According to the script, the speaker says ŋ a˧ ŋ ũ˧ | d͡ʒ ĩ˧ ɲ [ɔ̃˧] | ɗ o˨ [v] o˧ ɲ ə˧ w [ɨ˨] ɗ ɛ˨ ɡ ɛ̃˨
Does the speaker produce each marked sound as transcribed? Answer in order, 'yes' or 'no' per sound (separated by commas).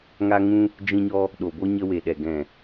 no, no, no